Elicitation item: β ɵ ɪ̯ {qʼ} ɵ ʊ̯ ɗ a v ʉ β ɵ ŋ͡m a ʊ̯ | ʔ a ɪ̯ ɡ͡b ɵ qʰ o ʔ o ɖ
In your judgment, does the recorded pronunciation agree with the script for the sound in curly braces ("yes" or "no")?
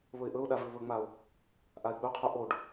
no